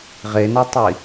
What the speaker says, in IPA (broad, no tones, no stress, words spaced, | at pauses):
ʁenɔtˤi